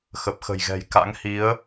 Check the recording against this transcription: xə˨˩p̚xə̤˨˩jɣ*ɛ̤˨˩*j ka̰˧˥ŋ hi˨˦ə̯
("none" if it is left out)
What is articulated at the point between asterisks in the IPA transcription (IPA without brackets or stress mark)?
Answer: ɛ̤˨˩